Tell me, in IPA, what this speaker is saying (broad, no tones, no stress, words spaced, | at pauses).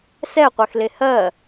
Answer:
sɛqʷɛxle hɜ